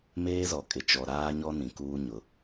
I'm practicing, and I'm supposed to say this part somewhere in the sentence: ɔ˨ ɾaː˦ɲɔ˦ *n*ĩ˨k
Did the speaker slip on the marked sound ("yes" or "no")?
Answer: no